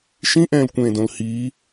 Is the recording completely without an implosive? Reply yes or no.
yes